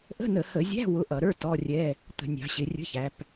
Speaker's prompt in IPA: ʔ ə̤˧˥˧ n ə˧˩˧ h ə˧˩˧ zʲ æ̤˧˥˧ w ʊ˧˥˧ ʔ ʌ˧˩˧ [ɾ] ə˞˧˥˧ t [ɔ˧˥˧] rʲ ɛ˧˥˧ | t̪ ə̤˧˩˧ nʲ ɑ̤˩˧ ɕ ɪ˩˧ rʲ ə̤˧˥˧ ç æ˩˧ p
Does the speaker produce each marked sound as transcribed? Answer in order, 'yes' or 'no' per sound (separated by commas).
yes, yes